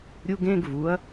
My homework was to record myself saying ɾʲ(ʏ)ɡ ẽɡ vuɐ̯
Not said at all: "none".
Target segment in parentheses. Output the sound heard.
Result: u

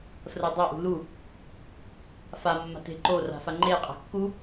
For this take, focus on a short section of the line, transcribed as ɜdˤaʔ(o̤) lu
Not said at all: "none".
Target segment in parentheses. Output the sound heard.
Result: ṳ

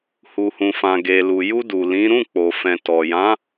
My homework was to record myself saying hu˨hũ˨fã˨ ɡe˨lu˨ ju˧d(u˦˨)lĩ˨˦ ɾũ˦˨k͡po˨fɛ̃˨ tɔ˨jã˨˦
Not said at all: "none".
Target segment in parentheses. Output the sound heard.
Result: u˨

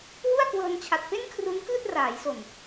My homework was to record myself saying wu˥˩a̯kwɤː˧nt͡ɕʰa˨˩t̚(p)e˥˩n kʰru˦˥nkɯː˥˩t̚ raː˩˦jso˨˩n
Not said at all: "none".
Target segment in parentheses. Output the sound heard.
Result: p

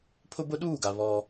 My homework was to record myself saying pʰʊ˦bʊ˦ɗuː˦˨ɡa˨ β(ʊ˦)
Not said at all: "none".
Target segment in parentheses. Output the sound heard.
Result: ɔ˦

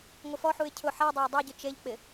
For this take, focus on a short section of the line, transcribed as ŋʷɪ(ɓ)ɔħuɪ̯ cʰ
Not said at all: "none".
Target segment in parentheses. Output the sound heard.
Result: f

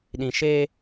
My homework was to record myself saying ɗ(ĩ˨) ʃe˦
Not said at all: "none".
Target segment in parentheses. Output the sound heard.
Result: ĩ˨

